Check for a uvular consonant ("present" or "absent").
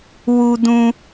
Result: absent